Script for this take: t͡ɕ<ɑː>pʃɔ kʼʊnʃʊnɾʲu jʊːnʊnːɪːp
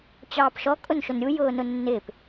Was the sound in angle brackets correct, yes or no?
yes